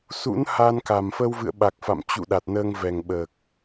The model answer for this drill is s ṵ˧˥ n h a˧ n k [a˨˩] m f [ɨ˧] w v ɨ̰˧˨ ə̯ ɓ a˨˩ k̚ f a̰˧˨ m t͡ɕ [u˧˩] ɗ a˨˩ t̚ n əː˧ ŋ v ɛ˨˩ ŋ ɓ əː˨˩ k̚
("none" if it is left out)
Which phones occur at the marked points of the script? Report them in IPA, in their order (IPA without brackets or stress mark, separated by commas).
a˨˩, ə˧, ṵ˧˨